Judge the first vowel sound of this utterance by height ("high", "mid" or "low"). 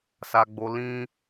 low